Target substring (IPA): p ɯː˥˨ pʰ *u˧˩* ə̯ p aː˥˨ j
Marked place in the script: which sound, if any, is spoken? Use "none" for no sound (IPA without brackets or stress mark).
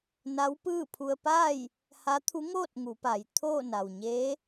u˧